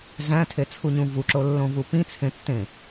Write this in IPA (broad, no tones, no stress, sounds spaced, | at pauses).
ɮ æ̃ tʰ e t͡sʰ u ɲ ũ v u ǁ o lː õ v u p ĩ t͡sʰ ẽ tː ẽ